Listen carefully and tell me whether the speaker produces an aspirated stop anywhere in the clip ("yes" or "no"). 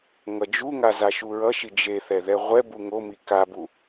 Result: no